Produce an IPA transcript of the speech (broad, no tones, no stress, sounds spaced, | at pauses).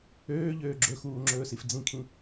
øː ʎ øː ɡ͡ǁ ɵ x uː ŋ͡ǁ ɵː s i f d͡z ĩ kʰ ĩ